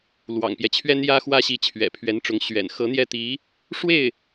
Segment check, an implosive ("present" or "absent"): absent